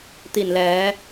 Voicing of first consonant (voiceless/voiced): voiceless